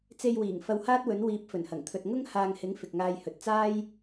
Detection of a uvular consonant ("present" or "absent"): absent